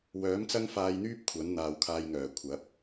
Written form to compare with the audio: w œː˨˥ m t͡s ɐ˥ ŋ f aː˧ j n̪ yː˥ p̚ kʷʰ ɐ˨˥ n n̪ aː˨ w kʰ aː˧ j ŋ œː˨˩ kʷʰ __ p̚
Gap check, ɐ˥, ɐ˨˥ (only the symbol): ɐ˨˥